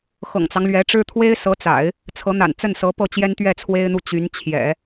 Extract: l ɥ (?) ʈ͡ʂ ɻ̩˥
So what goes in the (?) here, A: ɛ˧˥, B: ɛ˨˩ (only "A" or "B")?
A